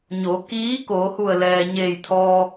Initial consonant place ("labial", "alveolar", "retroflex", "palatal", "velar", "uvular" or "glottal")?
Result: palatal